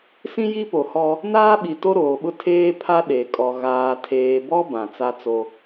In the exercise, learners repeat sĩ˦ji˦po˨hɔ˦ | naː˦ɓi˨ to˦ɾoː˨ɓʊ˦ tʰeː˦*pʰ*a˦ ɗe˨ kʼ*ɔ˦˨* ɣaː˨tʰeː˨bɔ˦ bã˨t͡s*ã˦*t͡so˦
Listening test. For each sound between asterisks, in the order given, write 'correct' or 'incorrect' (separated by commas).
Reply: correct, incorrect, incorrect